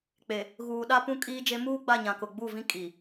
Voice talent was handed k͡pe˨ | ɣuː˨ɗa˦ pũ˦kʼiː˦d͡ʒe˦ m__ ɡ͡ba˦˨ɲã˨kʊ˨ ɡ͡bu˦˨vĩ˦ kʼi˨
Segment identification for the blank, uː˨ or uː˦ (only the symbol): uː˦